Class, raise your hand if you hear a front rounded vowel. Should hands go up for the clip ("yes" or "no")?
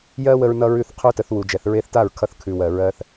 no